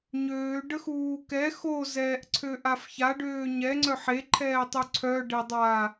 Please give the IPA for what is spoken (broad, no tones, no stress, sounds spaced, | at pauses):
ɲ øː ɖ ə x uː k ɛ x o z ɛː ʔ ǀʰ ø ʔ a f ç a ɖ øː ɲ ɛ ŋ͡ǀ œ ħ e ǃʰ ɛː tˤ y ǀʰ œ ɖ e dˤ aː